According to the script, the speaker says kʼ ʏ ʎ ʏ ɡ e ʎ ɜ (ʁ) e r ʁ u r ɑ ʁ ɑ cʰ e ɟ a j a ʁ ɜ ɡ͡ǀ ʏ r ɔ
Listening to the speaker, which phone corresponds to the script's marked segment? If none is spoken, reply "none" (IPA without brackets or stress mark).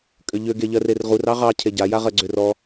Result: r